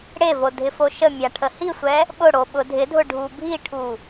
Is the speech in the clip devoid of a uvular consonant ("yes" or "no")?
yes